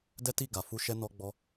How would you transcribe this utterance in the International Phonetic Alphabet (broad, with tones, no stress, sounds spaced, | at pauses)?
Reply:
d ɛ˦ t i˦˨ ɡ a˨ f u˧ ʃ ɛ˧ n ɔ˧ ɡ͡b ɔ˧